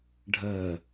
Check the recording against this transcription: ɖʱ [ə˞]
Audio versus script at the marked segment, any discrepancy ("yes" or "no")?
yes